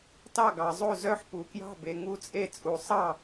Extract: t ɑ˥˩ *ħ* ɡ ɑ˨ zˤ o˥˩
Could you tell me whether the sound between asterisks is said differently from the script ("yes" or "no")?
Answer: yes